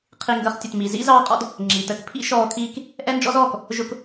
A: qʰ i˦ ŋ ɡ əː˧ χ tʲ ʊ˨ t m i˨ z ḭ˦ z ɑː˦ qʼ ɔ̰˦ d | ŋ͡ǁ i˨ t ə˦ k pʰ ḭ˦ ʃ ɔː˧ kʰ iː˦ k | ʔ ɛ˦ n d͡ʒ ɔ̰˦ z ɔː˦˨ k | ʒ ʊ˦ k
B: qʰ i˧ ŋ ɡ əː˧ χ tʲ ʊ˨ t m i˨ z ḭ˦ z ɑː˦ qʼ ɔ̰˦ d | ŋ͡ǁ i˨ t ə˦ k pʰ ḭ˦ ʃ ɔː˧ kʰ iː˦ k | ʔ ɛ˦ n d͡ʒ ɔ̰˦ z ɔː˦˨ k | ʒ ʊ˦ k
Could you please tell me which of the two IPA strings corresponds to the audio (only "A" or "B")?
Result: B